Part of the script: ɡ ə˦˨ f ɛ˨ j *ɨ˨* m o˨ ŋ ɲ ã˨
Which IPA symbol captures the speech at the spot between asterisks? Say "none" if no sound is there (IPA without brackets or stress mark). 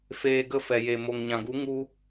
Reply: e˨